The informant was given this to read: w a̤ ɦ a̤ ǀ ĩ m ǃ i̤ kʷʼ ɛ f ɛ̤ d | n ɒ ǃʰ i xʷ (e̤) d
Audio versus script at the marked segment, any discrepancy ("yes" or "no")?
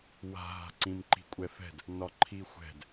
yes